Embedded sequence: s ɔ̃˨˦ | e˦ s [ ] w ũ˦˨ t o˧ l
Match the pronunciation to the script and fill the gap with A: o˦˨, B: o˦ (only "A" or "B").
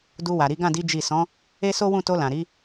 B